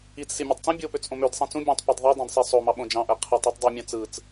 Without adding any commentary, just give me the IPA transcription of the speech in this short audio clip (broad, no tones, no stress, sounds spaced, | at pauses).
i t͡s s i mʲ e tˤ t͡s ẽ bʲ o p ø t͡s ʔ õ m ø d sˤ ĩ t͡s ũ bʲ ẽ tˤ p e d ðˤ ɯ dˤ ĩ d sˤ e sˤ o m ɑ ɓ õ d͡ʒ ɑ̃ ʔ æ qʰ e tˤ e tˤ dˤ e mʲ ɑ̃ t͡s ɯ t͡s